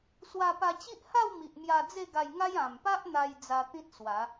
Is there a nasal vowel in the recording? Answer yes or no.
yes